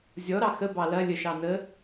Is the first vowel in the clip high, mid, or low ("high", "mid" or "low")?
mid